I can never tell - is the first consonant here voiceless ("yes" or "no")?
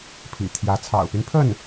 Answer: yes